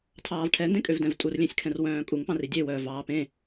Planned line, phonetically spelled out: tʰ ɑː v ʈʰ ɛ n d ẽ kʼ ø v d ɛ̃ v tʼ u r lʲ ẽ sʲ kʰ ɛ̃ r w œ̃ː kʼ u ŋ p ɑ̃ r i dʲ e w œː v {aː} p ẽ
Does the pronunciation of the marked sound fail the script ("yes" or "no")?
yes